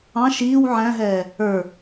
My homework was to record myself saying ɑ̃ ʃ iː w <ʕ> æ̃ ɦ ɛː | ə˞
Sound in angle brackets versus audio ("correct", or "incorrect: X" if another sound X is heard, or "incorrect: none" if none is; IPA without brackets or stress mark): correct